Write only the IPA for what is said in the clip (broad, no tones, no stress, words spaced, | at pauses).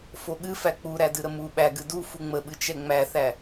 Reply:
foɠɨ fæk͡puɾædɨ ɾəmu ɓæɡɨ du fuŋ͡məɓɨ t͡ʃɛŋ͡mæθæ